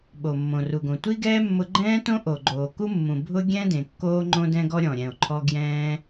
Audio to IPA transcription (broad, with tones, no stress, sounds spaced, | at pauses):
ɓ o˩ mː õ˩ r u˩ ɡ õ˩ tʷ i˥ ɡ ɛː˥ mː ʊ˧ ɡ͡ǃ ɛ̃ː˥ t õ˥ ʔ o˩ ɡ͡ǃ oː˩ k u˥ mː ũ˩ bʱ ʊ˥ ɡʲ ɛ̃˥ d ẽ˩ kː oː˧ ŋ͡ǃ õ˧ d ɛ̃˧ ɡ ɔ˧ ɾʲ ɔ̃˩ ɾʲ ɛ̃˩ o̯ ǃʰ ɔ˧ ɡ j ɛ̃ː˧